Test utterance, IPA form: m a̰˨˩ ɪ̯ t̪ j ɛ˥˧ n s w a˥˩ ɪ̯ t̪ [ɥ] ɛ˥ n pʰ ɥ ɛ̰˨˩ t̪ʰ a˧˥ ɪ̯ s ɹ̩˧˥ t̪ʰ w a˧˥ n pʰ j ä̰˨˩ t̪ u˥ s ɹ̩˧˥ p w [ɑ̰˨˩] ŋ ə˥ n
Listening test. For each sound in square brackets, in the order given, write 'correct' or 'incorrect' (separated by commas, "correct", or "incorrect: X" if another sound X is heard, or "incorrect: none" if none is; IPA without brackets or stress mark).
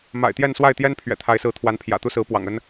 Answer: incorrect: j, correct